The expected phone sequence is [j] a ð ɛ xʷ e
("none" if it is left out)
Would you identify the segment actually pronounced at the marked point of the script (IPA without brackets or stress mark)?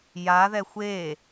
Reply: j